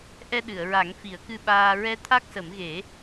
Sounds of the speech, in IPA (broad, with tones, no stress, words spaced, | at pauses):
ʔɛ˧ɗɨ˨˩˨ə̯ɹa˨˩˦ŋ fi˨˩˦ə̯kɨ˧ɓaː˧ ɹɛ˧t̪ʰa˦˥k̚sə˨˩˦mɣe˨˩˦